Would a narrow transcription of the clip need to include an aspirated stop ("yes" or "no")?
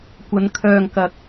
yes